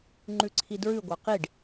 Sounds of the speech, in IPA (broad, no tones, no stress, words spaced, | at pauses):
ŋ͡ǃʉǀʰidɹʉ ɡʷɑqiɖ